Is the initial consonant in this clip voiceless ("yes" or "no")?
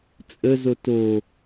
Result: yes